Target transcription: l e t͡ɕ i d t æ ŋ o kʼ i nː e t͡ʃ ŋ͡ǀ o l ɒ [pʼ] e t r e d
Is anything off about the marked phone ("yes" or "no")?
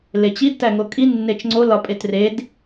no